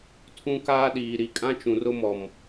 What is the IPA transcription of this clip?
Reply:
tʰ ũ˦ k aː˦ ɗ iː˨ ɾ i˨ kʼ ã˦ t͡ʃ ũ˨ r ʊ˦ m ɔ˨ m

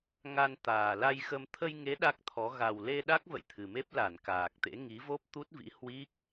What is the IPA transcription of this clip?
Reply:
ŋ a˧ n t̪ aː˨˩ l a˧ j x ə˧ m t̪ʰ ə˧ j ŋ e˨˦ ɗ a˦˥ k̚ t̪ʰ ɔ˨˦ ɣ a˨˩ w l e˧ ɗ a˦˥ k̚ v ə̰˧˨ j t̪ʰ ɨ˨˩ m e˦˥ p̚ l a˧˩ n k aː˨˩ k̚ t̪ ḛ˧˥ ŋ i˨˦ v o˦˥ p̚ t̪ u˦˥ t̚ v ḭ˧˥ h w i˦˥ k̚

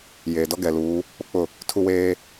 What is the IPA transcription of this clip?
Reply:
j eː˨ d ɔ˦ ɡ ɛ˨ l uː˨˦ | k͡p ʊ˦ k͡p ʊ˦˨ | tʰ u˦ w eː˦

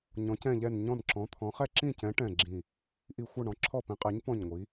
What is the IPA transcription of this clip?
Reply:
ɲ ɔ̃˨˦ c ɛ̃˦˨ ʎ ɛ˦˨ n ɲ ɔ̃˦˨ n ǁ ɔ̃˨˦ t̪ʰ ɔ̃˨˦ χ ɛ˦˨ ǁ ĩ˦˨ c ɛ̃˨˦ ʈ ɛ̃˦˨ ɡ͡ǁ ĩ˦˨ | ʔ i˦˨ xʷ ʌ˦˨ ɳ ɔ̃˨˦ ǁʰ ɔ˦˨ p ĩ˨˦ qʼ ɛ˨˦ ɲ p ɔ̃˦˨ ɲ ŋʷ i˨˦

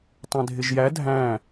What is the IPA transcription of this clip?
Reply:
tˤ æ̃ dʱ ɪ ʒ j æ dʱ æ̃

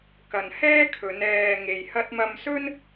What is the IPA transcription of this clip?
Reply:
k ɐ˨ n h ɛː˥ kʰ ɵ˨˧ n ɛː˨ ŋ e˨ j h ɐ˧ t̚ m ɐ˧ m s ɵ˥ n

